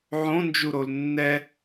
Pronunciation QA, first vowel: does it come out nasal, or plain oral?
nasal